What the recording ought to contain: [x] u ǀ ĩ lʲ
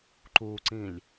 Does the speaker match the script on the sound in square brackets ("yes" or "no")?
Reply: no